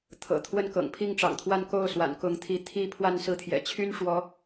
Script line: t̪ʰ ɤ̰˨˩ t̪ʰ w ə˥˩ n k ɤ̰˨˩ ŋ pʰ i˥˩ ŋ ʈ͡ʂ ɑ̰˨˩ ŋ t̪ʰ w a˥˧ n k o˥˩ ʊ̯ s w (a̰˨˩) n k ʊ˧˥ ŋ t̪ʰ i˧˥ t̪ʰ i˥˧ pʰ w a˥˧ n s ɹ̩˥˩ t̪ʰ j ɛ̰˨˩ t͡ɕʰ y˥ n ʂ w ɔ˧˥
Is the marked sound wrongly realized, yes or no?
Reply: no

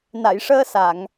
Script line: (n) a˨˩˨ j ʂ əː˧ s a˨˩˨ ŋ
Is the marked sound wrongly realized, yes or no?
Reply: no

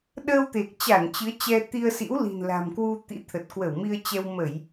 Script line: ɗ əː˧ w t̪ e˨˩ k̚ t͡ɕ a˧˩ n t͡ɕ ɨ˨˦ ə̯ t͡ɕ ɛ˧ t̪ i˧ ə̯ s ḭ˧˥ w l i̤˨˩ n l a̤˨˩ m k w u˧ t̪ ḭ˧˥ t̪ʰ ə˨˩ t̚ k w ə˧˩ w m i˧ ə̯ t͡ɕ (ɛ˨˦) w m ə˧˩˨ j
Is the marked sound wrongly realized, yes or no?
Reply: yes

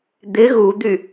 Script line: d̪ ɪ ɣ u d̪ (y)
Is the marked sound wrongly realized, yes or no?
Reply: no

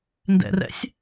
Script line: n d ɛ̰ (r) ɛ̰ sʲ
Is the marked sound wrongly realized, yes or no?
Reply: no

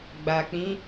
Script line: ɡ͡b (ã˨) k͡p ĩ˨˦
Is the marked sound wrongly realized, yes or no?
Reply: yes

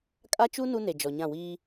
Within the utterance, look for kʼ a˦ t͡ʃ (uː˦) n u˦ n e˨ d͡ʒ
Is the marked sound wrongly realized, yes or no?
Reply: yes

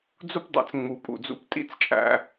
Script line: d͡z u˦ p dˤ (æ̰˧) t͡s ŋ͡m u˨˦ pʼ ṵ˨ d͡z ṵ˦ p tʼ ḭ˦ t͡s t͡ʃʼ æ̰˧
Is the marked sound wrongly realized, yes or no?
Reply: yes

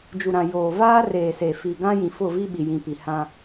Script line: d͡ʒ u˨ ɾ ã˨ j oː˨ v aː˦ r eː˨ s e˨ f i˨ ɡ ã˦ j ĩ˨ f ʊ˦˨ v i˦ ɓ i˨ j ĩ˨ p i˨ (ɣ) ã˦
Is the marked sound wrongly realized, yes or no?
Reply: yes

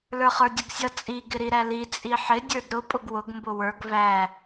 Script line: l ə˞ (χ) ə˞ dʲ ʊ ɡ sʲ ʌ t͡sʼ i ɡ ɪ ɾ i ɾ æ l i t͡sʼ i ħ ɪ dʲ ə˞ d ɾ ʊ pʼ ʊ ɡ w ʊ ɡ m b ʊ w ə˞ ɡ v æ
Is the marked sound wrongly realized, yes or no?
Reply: no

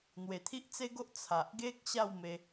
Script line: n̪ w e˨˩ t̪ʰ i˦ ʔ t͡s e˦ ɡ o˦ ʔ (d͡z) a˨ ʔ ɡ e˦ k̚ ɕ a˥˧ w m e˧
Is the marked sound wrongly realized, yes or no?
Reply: yes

